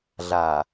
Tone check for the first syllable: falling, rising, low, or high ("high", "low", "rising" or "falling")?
low